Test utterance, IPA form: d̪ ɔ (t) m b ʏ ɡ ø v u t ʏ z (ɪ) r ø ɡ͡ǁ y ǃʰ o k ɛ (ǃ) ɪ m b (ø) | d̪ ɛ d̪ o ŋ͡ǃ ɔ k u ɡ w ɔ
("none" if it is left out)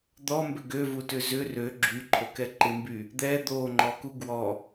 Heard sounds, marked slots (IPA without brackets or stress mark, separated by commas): none, ʏ, ǃ, y